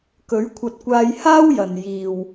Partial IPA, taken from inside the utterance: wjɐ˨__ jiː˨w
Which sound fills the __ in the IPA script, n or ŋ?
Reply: n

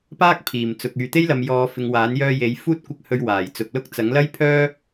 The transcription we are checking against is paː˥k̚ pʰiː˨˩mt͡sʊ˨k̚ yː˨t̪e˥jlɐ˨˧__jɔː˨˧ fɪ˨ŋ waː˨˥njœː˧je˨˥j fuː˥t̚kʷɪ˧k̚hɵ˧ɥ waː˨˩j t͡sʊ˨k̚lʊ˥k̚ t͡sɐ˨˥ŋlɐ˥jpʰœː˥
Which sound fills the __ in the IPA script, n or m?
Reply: m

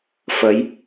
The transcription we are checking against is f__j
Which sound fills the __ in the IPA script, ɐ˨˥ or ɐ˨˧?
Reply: ɐ˨˧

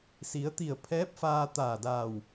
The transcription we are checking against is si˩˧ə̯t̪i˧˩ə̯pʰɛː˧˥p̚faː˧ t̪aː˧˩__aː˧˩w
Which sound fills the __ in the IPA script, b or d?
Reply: d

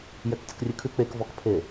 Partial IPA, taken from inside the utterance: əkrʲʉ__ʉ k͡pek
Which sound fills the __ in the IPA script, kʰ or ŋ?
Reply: kʰ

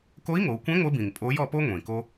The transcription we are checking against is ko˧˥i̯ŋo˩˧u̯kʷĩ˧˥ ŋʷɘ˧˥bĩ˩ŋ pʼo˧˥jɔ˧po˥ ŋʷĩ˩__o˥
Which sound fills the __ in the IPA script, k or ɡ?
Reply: k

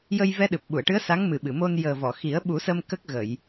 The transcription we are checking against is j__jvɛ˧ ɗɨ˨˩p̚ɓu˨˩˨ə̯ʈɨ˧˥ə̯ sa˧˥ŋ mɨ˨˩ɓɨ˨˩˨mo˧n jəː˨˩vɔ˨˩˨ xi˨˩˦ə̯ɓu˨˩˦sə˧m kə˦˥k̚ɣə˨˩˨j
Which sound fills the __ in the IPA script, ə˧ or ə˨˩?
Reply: ə˧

